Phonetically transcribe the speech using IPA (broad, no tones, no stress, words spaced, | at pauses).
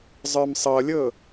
zˤə˞msˤɤlʲɤ